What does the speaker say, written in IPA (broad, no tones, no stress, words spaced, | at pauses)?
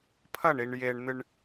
pʰɐɳiɳ jeɳn̪ɨɳ